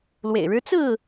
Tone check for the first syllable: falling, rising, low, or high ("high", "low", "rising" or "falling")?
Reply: low